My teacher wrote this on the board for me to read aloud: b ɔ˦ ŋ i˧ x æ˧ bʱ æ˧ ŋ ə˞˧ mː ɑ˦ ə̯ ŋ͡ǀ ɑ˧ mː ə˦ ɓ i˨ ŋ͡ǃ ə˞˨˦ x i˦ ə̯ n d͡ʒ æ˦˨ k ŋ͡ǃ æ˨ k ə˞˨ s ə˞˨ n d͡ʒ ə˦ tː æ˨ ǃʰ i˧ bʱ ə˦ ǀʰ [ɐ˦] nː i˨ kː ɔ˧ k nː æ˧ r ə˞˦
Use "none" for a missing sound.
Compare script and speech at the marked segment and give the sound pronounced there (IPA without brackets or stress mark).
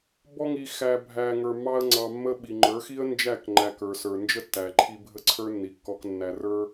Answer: ə˞˦